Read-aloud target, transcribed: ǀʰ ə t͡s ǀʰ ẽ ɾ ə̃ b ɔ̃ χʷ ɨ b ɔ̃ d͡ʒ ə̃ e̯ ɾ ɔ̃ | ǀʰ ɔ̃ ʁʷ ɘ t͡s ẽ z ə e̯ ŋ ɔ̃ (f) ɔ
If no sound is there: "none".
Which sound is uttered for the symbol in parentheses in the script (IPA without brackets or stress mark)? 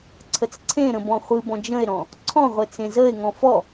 f